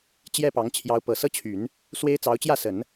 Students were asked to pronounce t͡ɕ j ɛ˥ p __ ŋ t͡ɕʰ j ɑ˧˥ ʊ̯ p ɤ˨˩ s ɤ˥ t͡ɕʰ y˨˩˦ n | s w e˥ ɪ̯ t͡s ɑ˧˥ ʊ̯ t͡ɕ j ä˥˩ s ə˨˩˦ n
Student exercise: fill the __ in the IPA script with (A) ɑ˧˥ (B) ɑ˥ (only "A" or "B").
A